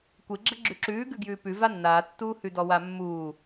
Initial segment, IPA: kʷ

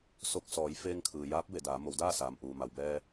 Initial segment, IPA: s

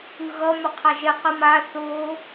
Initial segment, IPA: ɯ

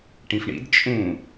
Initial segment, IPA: ʈ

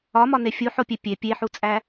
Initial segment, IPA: ɒ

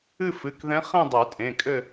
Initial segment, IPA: ɨ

